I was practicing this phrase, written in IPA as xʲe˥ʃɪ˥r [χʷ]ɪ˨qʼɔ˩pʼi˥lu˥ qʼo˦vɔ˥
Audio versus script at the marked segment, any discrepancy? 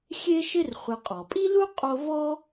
no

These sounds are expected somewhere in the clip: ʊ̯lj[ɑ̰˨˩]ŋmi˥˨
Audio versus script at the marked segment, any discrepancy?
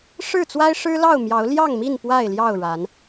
yes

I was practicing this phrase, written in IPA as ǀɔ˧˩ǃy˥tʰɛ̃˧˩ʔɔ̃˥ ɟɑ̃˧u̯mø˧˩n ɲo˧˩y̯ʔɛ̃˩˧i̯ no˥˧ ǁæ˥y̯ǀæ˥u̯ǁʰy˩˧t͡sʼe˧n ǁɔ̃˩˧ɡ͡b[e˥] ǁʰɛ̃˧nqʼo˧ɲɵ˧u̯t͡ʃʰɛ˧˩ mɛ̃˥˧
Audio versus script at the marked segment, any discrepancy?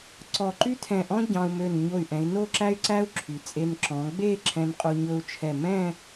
yes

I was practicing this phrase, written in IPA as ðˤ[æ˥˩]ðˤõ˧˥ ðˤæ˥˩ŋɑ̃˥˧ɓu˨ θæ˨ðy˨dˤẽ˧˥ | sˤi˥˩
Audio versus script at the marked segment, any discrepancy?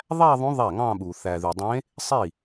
yes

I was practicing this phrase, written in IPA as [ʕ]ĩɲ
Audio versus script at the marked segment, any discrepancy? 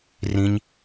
yes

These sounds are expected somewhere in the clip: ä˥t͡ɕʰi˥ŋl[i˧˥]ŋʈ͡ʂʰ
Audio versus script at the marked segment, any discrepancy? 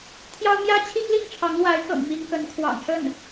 yes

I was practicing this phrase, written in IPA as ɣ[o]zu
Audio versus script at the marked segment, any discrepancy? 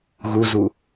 yes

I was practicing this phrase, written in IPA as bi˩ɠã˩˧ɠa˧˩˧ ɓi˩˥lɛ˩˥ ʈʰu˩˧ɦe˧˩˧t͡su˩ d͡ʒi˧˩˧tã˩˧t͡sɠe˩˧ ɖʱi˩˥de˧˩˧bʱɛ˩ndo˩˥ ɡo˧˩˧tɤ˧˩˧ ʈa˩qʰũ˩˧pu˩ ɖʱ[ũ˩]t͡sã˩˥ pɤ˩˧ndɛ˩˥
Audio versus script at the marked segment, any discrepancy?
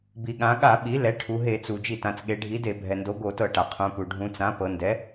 yes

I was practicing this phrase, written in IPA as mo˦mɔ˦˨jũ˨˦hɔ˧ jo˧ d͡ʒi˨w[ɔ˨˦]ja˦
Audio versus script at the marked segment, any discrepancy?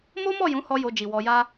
yes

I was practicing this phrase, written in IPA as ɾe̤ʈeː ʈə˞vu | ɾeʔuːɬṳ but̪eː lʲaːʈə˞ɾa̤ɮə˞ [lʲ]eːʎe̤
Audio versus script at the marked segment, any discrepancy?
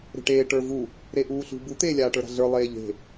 yes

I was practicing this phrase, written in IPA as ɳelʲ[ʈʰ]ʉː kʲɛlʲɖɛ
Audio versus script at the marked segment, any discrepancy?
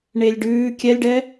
yes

